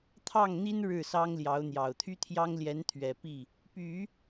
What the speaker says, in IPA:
t̪ʰ ɑ˥˩ ŋ n̪ i˥ n ɻ ɻ̩˥˩ s ɑ˥ ŋ l j ɑ˧˥ ʊ̯ n̪ j ɑ˨˩ ʊ̯ t̪ʰ y˥ t̪ʰ j ɑ˥ ŋ l j ɛ˧˥ n t̪ʰ ɥ ɛ˨˩ p i˥˩ | p y˨˩˦

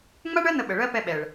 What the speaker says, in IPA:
ŋ͡m a˦ ɳ ɜ˦ n̪ ə˧ ɓ ə˨ ɭ ɜ˦ p ɛ˧ ɓ ɛ˨ ɭ

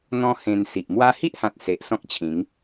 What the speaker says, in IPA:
n̪ ɔ̃˦ h ẽ˧ n s i˨ ʔ m w a˦ h i˦ ʔ h ã˨ t̚ s e˨ ʔ s ɔ̃˦ k̚ t͡ɕʰ ĩ˨˦ ŋ

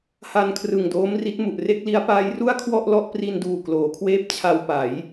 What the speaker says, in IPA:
h a˧ n kʰ r ɯ˨˩ ŋ d oː˦˥ m r i˦˥ t̚ m u˨˩ ʔ r e˥˩ k̚ l i˦˥ a̯ p aː˦˥ j r u˥˩ a̯ kʰ w ɔ˥˩ ʔ l ɔ˥˩ ʔ p r i˧ n d uː˨˩ k l oː˩˦ kʰ w eː˥˩ p̚ t͡ɕʰ a˧ w p a˩˦ j

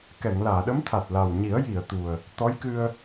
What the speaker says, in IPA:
k ɛ˨˩˨ ŋ l aː˨˩˨ ɗ ə˧˥ m t̪ʰ a˨˩ t̚ l a˨˩ w ɲ i˨˩˦ ə̯ j i˨˩˨ ə̯ t̪ u˨˩ ə̯ | t̪ ɔ˧˥ j k ɨ˧ ə̯

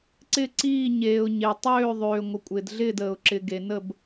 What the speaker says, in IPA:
ǀ ɪ˦˨ ǀ iː˦˨ ɲ eː˨ ʊ̯ ɲ e˨ tˤ øː˦˨ ðˤ øː˨ ŋʷ ɪ˨ kʷʼ ɪː˨ d ɮ ɪː˦˨ d əː˨ ʊ̯ ǁ ɪ˨ ɡ e˨ n ə˦˨ b

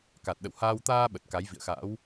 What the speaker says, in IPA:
k a˨˩ t̚ ɗ ə̰˧˨ w h aː˧ w t̪ aː˧ ɓ ə˨˩ t̚ k a˨˦ j v ḭ˧˨ ə̯ x a̰˧˥ w

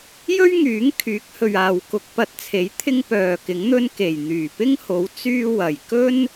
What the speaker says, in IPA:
j ɵ˥ ɥ ŋ yː˨˥ ŋ kʰ yː˨˥ k̚ h ɵ˨ ɥ aː˨ w k ʊ˧ k̚ p ɐ˧ t̚ t͡sʰ e˨˥ j t̪ʰ ɪ˥ ŋ p œː˨ k ɪ˨˥ ŋ n̪ ɵ˥ n k e˨˩ j n̪ yː˨˩ p ɪ˥ ŋ h o˨˥ w t͡s yː˧ w ɐ˨˩ j k ɵ˥ n

